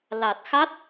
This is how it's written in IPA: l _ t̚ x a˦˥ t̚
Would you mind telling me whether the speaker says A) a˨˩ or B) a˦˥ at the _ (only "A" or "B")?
A